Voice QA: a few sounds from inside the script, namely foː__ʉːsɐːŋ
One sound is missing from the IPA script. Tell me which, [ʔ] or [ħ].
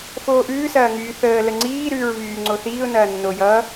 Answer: ʔ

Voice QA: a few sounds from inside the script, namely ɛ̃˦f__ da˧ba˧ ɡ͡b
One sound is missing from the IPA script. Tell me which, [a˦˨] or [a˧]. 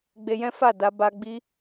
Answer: a˦˨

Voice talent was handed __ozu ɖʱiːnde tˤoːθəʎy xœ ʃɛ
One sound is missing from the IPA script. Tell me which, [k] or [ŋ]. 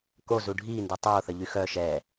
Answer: k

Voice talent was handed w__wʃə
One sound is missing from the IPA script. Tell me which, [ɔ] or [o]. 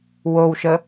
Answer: o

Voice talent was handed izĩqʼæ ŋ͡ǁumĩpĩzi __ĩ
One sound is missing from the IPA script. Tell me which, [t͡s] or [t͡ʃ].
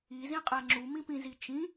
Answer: t͡ʃ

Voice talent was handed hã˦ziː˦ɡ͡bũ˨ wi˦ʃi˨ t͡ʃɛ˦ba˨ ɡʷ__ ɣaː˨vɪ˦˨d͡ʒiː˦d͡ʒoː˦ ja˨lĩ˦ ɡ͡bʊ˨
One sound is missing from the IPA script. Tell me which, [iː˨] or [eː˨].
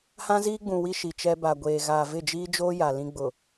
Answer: eː˨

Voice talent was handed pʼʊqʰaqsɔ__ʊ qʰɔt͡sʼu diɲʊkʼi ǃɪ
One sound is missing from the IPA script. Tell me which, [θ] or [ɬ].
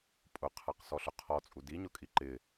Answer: ɬ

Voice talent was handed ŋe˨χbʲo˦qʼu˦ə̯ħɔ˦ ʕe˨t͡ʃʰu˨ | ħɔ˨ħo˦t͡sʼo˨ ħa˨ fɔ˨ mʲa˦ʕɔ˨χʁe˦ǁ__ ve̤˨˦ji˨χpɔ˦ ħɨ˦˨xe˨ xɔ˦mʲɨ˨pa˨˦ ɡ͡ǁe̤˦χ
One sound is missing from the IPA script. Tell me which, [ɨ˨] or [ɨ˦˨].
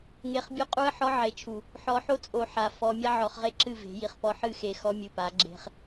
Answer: ɨ˦˨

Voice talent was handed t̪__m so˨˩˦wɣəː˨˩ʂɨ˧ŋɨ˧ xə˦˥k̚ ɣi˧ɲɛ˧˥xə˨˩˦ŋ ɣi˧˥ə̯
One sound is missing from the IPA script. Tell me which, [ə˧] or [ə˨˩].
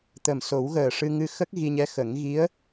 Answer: ə˨˩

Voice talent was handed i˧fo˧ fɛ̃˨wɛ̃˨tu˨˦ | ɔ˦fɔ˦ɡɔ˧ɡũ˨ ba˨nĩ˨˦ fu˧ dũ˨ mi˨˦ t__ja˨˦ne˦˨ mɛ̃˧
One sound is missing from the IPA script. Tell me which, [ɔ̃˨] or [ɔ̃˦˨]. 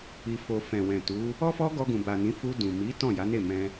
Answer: ɔ̃˦˨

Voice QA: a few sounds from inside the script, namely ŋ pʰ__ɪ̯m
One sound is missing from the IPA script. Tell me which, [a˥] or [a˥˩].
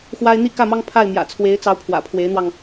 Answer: a˥˩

